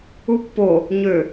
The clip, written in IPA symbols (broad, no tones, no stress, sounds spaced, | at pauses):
u pː o | ɲ ø